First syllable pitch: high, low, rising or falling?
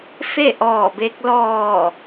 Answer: falling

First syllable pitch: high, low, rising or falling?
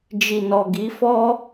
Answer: low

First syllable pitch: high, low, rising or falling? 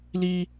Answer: high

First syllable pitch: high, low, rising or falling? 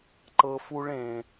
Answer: low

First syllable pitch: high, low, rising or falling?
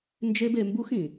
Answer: high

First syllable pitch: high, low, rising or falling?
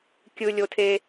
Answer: high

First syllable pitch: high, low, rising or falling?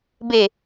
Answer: falling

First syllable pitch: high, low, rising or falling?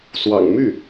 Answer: low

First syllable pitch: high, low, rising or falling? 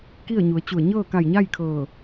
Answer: falling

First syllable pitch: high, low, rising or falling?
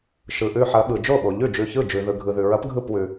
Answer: low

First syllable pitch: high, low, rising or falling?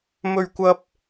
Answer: high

